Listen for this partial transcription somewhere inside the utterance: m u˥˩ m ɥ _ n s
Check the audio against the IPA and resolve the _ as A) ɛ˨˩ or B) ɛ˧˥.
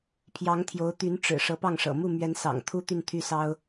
B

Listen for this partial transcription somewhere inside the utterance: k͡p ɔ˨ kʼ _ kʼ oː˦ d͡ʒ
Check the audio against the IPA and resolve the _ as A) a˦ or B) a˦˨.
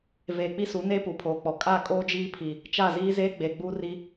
B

